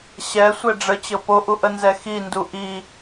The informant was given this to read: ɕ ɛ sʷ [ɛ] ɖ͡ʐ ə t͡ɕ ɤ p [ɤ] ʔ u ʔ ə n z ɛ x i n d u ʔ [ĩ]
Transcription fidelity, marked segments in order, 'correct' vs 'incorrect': correct, incorrect: o, incorrect: i

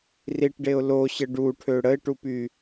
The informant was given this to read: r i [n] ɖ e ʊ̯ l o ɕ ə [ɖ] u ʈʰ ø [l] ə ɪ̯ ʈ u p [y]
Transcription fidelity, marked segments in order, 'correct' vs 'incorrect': incorrect: ʈ, correct, incorrect: ɽ, correct

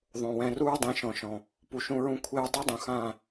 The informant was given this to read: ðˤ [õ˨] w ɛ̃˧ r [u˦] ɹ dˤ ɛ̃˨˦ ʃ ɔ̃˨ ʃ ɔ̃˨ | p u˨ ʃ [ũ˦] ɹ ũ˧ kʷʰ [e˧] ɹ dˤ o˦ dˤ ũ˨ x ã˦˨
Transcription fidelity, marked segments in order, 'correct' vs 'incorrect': correct, correct, incorrect: ũ˧, correct

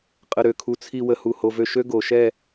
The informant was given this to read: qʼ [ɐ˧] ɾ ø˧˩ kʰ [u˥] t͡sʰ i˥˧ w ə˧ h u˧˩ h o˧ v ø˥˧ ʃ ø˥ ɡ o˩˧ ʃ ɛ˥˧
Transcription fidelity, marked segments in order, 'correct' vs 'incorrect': incorrect: ə˧, incorrect: u˧

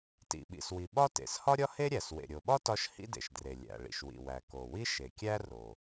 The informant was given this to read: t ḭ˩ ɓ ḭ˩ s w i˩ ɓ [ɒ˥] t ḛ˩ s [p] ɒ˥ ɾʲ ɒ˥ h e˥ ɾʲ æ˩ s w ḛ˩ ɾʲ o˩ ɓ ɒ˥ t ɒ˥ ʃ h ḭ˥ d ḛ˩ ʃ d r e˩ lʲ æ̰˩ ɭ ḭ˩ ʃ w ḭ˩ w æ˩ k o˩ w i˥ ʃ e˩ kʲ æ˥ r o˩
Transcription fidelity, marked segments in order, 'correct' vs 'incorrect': correct, incorrect: h

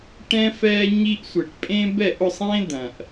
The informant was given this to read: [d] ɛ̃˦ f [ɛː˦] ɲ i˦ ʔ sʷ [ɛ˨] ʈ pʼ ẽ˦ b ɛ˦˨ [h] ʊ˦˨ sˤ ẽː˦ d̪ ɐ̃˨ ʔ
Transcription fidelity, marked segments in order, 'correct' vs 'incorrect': incorrect: ʈ, correct, incorrect: e˨, incorrect: ʔ

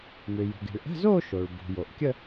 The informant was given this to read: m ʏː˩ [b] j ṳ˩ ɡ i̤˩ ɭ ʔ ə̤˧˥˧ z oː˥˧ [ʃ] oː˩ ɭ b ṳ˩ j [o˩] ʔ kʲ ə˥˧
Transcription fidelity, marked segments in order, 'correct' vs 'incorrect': incorrect: none, correct, correct

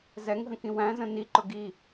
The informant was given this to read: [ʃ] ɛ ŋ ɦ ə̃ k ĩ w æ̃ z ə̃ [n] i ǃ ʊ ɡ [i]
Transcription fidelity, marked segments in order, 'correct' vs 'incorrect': incorrect: z, correct, correct

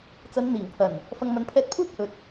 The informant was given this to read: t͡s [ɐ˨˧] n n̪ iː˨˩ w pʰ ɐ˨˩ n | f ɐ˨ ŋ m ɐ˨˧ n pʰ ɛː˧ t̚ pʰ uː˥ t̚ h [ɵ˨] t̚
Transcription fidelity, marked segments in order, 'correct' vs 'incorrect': correct, correct

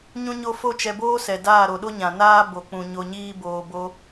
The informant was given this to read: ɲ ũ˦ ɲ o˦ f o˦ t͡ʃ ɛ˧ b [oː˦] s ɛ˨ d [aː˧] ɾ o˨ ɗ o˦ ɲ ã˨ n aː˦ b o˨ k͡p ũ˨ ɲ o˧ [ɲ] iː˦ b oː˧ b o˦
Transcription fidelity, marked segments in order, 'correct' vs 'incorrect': correct, incorrect: aː˦˨, correct

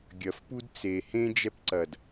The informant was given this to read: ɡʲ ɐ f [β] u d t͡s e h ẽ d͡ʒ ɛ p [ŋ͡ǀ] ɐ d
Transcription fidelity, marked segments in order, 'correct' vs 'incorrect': incorrect: p, incorrect: ǀ

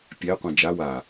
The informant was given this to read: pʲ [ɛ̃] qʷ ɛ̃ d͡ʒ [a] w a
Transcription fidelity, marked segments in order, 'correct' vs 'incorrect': incorrect: ɛ, correct

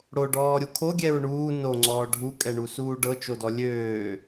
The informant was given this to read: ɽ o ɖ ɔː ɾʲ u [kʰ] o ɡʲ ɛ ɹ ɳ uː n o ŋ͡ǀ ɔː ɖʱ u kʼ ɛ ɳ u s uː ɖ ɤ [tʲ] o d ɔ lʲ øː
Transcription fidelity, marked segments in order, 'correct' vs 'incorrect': correct, incorrect: t͡ʃ

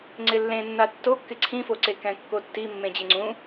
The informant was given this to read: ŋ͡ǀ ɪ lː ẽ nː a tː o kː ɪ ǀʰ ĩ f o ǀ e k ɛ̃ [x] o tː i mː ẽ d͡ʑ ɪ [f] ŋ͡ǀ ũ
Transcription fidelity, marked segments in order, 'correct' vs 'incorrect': incorrect: kː, incorrect: none

